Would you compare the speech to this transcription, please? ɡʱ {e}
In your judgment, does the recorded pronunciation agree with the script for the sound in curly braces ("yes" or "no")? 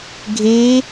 yes